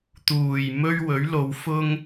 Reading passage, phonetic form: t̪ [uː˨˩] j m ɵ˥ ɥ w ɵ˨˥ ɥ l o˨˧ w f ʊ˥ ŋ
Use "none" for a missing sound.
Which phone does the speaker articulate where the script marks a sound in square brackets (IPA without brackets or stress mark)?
uː˨˩